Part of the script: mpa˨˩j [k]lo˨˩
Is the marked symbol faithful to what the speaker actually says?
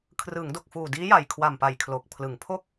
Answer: no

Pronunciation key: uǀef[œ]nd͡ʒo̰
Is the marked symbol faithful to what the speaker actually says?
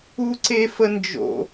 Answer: no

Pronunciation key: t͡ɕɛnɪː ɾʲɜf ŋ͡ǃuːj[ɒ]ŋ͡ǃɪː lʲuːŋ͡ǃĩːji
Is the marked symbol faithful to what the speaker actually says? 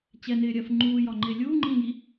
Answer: yes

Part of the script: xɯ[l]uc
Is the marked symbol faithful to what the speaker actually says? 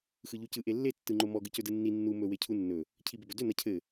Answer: no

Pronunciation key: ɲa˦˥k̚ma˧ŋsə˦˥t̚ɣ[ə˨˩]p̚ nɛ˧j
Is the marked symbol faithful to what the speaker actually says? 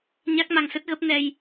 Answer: no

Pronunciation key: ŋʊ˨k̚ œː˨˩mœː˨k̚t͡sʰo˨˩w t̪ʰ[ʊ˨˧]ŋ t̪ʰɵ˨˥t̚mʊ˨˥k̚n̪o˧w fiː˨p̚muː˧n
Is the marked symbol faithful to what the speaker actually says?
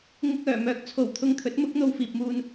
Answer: no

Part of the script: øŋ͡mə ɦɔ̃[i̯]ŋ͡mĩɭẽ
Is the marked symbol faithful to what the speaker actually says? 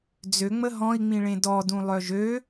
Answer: yes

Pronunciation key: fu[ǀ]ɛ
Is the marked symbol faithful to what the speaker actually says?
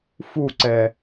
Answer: yes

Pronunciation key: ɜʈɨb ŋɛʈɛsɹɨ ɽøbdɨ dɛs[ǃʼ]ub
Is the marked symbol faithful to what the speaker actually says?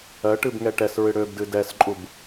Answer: yes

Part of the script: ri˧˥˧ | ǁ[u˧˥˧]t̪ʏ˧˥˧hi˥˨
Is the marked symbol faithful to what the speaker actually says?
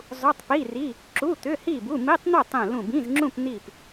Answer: yes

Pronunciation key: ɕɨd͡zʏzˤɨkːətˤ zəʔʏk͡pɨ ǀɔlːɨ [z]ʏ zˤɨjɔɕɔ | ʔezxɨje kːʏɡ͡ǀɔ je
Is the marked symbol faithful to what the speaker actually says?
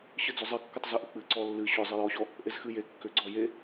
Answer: no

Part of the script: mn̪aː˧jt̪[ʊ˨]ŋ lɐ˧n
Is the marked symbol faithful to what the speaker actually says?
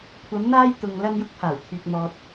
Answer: yes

